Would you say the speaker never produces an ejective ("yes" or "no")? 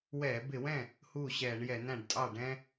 no